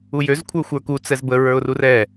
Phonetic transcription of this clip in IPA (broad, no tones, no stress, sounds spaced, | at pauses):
u j ø z kʷʰ ə˞ xʷ ə˞ k u t͡s ɛ z b ə ɹ ə˞ ʊ̯ r u r ɛ